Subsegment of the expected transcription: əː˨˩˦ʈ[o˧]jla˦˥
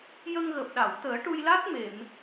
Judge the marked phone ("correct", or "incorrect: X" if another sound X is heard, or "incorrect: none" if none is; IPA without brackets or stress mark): incorrect: u˧